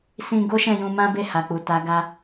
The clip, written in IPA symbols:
s ĩ˧ ɡ o˦ ʃ ɛ̃˦˨ j ũ˧ m ã˦ b e˦˨ h a˨ k͡p u˨ t a˨˦ ɡ a˧

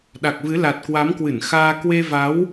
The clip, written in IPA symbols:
ɗ a˨˩ k̚ v ɨ˨˦ l a˨˩ t̚ k w a˨˦ m k w ɨ˧˩ n x aː˧ k w e˧ v a˨˦ w

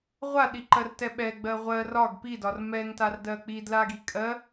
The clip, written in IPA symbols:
ʁʷ a ɗ i ǃ ɜ r t ɛ ɓ ɛ ɡ͡b ɜ ʁʷ ɜ r ɒ ɡ p i d ɒ r m ɛ ŋ t a r d ɜ k͡p i d l a ɡ i kʼ ɜ

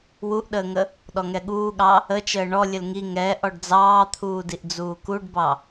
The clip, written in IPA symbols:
w u ʔ ɗ əː ŋ ə | ɗ ɔ ŋ ɛ ɠ uː ɠ ɑ | ə t͡ʃ əː ɳ ɔ lʲ ə l ŋ i ŋ ɛ ʔ ɔ ɖ d͡z ɑː t̪ʰ uː d i ʔ d͡z uː k u ɖ b ɑ

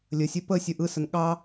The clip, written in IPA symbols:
lʲ ə sʲ ɛ p ə sʲ ɯ ʔ ɯ s ə n ɠ ɑ

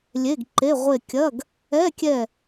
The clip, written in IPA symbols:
lʲ e˧˥˧ ɡ ǃ e˧˥˧ ʁʷ e˦˨ kʲ ɐ˧˥˧ ɡ | ɛ˧˥˧ kʲ ɛ˦˨

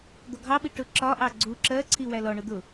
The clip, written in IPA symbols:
d̪ ɔ ɡʱ ɑ ɓ i ʈ ʊ ǁ ɒ ʔ ɑ ɡ͡ǀ u ǁ ɜ ǀʰ i w æ l ɔ ɳ ʊ d̪ ʊ

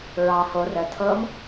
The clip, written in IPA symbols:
ɹ ɑ h o r ə tʰ ɤ m

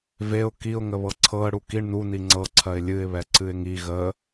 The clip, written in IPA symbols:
v e ʊ̯ k i ʊ̯ ŋ ə β ɤ ǀʰ ɤ ə̯ ɽ u k i ɳ n u n i ŋ͡ǀ ɤ ǀʰ ɜ ɪ̯ lʲ ɨ ɪ̯ β ɛ ǀ ɨ ɪ̯ ŋ i ɣ ə

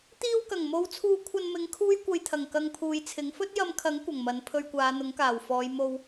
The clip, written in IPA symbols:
t̪ iː˧ w k ɐ˨˩ ŋ m o˨˧ w t͡sʰ uː˧ kʷʰ ɐ˧ n m ɪ˨˧ ŋ kʰ uː˥ j kʷ ɐ˧ j t̪ʰ ɐ˨˩ ŋ k ɐ˧ ŋ pʰ uː˨ j t͡sʰ ɪ˨˥ ŋ f ɵ˥ t̚ j ɐ˧ m kʰ ɐ˨˥ ŋ kʷ ɐ˨˩ ŋ m ɐ˨˥ n pʰ ɵ˧ ɥ kʷ aː˨˧ n̪ ʊ˨˥ ŋ k aː˨˩ w f ɔː˨˧ j m o˧ w

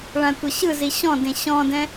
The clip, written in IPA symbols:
ɭ ã tʷ ɤ ɕ ɯ z i ɕ ɔ̃ d ẽ ɕ ɔ̃ d ɛ̃

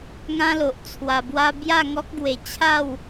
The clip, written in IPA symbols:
ŋ ã˦ l o˨ ʔ t͡sʰ w a˧ b w a˧ b j a˥˧ ŋ ɔ˦ k̚ ɡ w e˧ t͡ɕʰ a˥˧ w

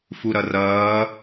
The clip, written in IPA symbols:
f u ɾ ʌ r ʌː

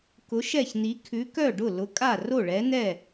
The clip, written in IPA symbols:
k ʊ˨˥ ʃ ɛ˥˩ ç n i˨˥ kʰ ʉ˨˥ k œ˥˩ ɖ ʊ˥˩ l ʊ˨˥ kʼ a˥˩ r o˥˩ ɭ ɛ˨˥ n ɛ˥˩

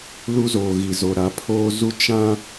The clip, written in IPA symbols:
l u˦ z o˨ ɣ i˨ z o˨ ɾ a˨˦ pʰ oː˦ z u˦ t͡ʃ ã˦

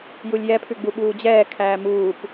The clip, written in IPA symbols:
j u lʲ j ɛ pʰ ʉ ɡ͡b u ɓ uː d͡ʑ ɛː kʰ æː m uː p

